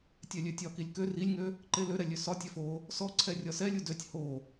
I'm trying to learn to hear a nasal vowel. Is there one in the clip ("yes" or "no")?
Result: no